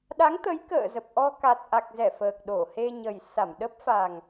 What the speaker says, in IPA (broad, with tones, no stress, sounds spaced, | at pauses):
ɗ a˨˦ ŋ t̪ ə˨˦ j k ə̰ː˧˨ z ə˨˩ p̚ ʔ ɔ˧ k a˨˩ t̚ ʔ a˨˩ k̚ z ɛ˧˩ f əː˨˩ k̚ ɗ o˧˩ h e˧ ɲ ə˨˩ j s a˧˩ m ɗ ə˦˥ p̚ f a˨˩ ŋ